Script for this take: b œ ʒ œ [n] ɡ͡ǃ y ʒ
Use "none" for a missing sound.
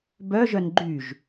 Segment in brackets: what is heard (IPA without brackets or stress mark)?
n